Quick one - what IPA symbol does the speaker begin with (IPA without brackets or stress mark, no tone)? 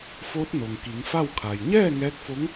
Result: f